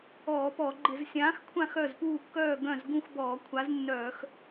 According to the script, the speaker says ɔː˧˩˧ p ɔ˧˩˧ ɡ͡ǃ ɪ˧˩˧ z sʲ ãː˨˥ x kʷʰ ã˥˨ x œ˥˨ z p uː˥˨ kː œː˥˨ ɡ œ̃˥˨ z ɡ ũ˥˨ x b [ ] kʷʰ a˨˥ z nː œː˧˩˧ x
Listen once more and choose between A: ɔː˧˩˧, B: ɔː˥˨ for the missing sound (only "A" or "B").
A